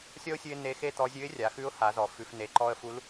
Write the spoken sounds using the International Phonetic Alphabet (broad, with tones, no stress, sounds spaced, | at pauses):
sʲ ɔ˥ ʊ̯ sʲ ʉ˧ ɪ̯ n e˧˥ x e˥ t̪ ɔ˧˥ zʲ ʉ˧˥ ɪ̯ rʲ a˩˧ x ʉ˧ ʊ̯ h a˩˧ z ɔ˩ f ʉ˩ f n e˩ ǃ ɔ˧ ə̯ f u˧˥ l